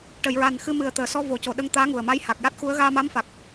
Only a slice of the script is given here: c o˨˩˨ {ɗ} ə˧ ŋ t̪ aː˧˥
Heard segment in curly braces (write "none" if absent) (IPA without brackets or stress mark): ɗ